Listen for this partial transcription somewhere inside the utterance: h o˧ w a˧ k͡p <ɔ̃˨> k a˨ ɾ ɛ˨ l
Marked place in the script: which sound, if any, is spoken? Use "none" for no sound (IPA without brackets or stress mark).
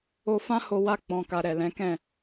ɔ̃˨